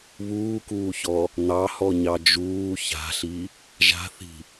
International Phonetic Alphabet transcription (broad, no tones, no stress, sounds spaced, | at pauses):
β uː k uː ç ɔ | n̪ ɑ h ɔ ɲ ɑ d͡ʒ uː ç a̤ ɬ i | ʒ a̤ θ i̤